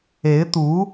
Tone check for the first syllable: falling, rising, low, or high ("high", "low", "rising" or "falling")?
rising